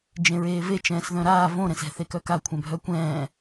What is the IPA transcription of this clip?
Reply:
d͡ʒ ẽ ɹ eː v e t͡ʃ ɛ̃ː s ð œ̃ ɾ aː v õ ɾ ɛ̃ s ɛ̤ θ e k œ k a kʷʰ ɛ̃ bʱ œ kʷ ɛ̃ː

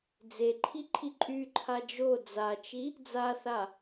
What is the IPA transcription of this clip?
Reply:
d͡z e ǃʰ i ǃʰ i ǃʼ y ǃʰ a d͡ʒ o d͡z a t͡ʃ i | d͡z a θ a

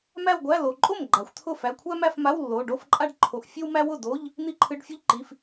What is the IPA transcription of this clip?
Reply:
m æ˥˧ w ɡʷ æ˧˥˧ l o˩˧˩ ǃʼ o˥˩ m ɡ͡ǃ a˩˧ xʷ t̪ʰ ʊ˥˩ f æ˩˧˩ kʷʰ æ˥ m æ˥˧ f m a˧˥˧ w lː o˩˧˩ ɖ o˥˧ f ǃʼ a˥ ɖ ǃʰ o˩˧˩ ʔ fʲ ɨ˥ w m æ˥ w ʊ˥˩ d o˧˥˧ ʎ | n̪ i˥˧ ǃʰ ɨ˧˥˧ ɖ fʲ ʊ˥ ʎ ǃ i˩˧˩ f

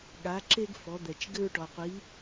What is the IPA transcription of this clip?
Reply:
ɠ a˩˧ ǁ e˧ ɡ f ɔ˩˧ d̪ ɛ˩ t͡ʃ ɡ ɘ˧ ɹ ʈ ɔ˩ qʷ i˩˧

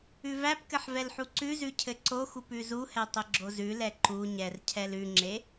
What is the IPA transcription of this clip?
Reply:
ʉ v æ p k ɘ ħ v ɛ l ħ u ǀ ʉ z ʉ cʰ ɘ ǀ o x u p ʉ z u h ɛ tˤ ɘ ɡ͡ǁ o z ʉ l ɛ ǃ u ɲ ɛ r cʰ ɛ l ʉ ŋ͡ǁ e

